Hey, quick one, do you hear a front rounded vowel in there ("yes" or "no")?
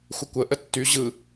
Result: yes